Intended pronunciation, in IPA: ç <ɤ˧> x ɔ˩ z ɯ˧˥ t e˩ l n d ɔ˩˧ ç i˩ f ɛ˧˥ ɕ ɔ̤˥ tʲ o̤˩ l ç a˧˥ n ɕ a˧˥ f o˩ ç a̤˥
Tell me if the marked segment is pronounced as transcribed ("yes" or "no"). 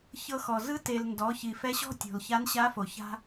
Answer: yes